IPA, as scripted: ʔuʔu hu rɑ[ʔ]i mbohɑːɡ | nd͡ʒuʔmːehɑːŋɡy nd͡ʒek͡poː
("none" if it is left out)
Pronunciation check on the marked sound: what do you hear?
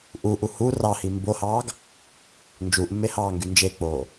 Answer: h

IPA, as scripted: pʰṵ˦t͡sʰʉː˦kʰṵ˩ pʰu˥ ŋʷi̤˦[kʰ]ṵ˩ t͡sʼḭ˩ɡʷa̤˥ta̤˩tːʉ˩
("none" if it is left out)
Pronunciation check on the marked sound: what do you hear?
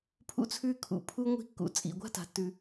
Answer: kː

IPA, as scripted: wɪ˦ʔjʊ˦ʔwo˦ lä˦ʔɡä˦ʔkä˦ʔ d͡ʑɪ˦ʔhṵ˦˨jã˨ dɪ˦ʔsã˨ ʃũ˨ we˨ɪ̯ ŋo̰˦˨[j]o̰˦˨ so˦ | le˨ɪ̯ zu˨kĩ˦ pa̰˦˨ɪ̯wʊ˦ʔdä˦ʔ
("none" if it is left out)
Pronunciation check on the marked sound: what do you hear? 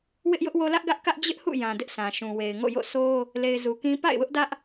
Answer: j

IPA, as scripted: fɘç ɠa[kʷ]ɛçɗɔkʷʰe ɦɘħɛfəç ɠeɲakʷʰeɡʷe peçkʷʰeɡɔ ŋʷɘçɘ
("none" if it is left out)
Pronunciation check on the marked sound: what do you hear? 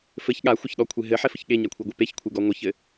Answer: xʷ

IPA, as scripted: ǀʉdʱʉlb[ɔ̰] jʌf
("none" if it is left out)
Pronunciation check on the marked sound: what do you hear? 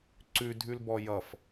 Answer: ɔ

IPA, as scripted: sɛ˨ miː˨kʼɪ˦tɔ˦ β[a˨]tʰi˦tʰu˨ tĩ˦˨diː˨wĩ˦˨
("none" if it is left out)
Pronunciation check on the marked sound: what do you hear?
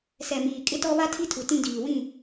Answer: a˦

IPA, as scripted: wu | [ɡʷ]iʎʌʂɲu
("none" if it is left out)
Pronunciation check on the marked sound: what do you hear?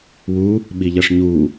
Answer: ɓ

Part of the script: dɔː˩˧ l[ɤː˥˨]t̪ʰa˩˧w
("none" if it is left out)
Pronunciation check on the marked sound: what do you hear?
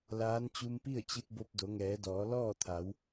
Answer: ɔː˥˨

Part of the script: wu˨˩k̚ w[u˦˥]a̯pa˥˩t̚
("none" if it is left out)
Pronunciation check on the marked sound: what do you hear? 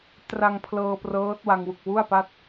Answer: u˥˩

